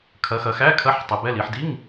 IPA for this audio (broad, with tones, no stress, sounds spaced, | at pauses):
kʰ ɐ˩˧ x ɐ˩˧ x æ˧˥˧ kʰ ɐ˧˥˧ ħ tˤ i˩˧ b ɛ˧˥˧ l i˩˧ ħ d i˧˥˧ ŋ